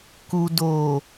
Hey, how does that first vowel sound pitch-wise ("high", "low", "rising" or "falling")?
low